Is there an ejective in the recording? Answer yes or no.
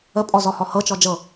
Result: yes